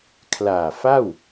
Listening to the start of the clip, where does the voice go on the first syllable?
low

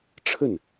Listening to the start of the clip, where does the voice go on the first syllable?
falling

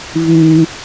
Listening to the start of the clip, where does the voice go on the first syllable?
high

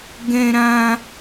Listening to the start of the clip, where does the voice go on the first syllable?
high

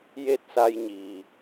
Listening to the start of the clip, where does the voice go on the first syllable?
falling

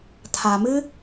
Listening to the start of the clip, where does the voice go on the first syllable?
low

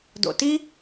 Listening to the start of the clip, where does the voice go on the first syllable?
low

